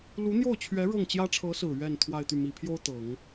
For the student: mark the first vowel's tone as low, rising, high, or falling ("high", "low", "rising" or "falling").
rising